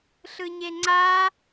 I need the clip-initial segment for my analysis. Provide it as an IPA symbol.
ɬ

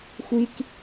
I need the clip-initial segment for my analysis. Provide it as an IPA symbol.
xʷ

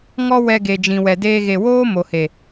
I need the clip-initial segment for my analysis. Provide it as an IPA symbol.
ŋ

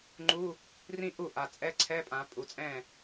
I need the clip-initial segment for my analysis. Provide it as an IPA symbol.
ŋ͡ǃ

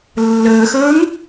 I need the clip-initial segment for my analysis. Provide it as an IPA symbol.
lː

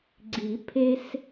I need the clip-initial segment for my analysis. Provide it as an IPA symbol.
ɡ͡ǀ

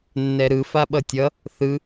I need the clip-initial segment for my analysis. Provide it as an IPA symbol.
nː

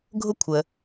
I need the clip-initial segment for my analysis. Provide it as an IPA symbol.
ɡʱ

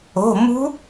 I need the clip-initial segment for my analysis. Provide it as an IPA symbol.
o̤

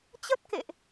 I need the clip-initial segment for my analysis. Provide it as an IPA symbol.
t͡ɕ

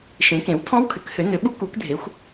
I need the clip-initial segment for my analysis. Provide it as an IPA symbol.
ʃ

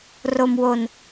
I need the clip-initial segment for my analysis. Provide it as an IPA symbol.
r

